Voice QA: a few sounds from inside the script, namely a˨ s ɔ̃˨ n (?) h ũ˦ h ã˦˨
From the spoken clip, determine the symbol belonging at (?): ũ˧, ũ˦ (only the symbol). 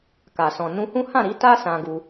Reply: ũ˧